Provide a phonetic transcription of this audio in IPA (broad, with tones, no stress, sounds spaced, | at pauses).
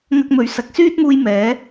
ŋ ɐ˥ k̚ m ɵ˧ ɥ s ɐ˨ k̚ s yː˥ t̚ m uː˧ j m ɛː˨˥